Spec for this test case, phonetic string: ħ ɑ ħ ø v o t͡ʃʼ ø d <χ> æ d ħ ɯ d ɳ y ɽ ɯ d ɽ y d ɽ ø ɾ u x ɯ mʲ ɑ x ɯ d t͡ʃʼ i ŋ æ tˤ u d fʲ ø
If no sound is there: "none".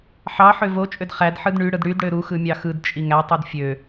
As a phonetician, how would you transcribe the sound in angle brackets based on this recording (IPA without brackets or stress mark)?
χ